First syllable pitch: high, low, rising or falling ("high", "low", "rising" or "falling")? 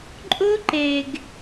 high